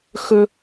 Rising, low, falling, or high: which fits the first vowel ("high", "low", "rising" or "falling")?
high